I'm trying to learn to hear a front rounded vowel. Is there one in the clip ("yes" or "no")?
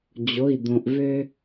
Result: yes